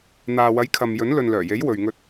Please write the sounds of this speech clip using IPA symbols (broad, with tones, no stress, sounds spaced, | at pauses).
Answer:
n̪ aː˨ w ɐ˨˥ j kʰ ɐ˨ m j ɵ˨˥ n l ɵ˨ n l œː˨˩ j e˨˥ j w ɵ˨ ɥ ŋ ɵ˧ t̚